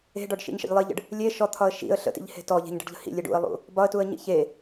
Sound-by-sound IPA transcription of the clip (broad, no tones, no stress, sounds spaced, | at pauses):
e̤ ɖ ɔ ɖ ʃ ḭ ɲ ʃ ə̰ ʎ lˠ i ʎ ə̰ ɖ | lʲ e ʃ ɔ t̪ʰ ɒ ə̯ ʃ ḭ ə̯ ɬ ə̰ t ḭ ʎ h e̤ t ɔ ʎ e̤ ɲ ɖ ə̤ ɖ ʎ ə̤ h ḭ lʲ e ɖ ṵ ə̯ lˠ ṵ | b ɒ ə̯ t u ə̯ ɲ ḭ ç e